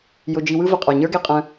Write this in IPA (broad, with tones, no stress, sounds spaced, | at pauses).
j ʊ˧ d͡ʒ i˧ w ɯ˦ v ə˨ qʼ ə˞˨ ɲ ə˞˦ ɡ e˧ qʼ ə̃˦